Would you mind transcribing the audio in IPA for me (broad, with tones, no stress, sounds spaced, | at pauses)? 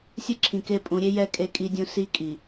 sʲ ɯ˦ ǁʰ ĩ˨ k e˦˨ pʼ ũ˨˦ ɾʲ e˦ j ɛ˦˨ kʼ e˦ kʼ i˦ dʲ ũ˦ s i˦ kʼ i˨